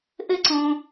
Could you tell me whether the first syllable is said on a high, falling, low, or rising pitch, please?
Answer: high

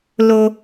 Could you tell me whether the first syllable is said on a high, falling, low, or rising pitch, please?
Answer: high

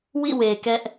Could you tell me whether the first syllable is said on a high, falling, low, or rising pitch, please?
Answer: falling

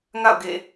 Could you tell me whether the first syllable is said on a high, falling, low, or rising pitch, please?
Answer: falling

